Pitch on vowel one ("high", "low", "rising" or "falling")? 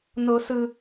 low